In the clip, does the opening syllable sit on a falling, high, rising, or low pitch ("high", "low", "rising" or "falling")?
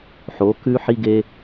rising